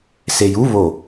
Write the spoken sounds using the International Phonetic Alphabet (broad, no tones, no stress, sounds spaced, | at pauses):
s e j u β o